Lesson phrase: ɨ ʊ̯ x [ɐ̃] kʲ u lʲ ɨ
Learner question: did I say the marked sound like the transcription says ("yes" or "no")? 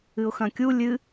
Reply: yes